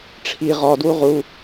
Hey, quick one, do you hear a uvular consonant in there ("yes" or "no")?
yes